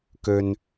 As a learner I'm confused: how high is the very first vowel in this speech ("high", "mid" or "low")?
mid